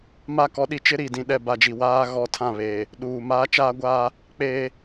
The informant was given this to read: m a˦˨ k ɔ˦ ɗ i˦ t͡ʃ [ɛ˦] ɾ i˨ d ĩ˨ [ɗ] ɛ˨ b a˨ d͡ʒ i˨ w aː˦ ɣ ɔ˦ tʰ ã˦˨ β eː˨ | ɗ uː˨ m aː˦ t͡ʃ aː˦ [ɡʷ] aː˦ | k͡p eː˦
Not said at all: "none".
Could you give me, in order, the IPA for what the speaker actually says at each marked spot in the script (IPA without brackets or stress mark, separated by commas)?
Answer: ɪ˦, ɗ, ɡʷ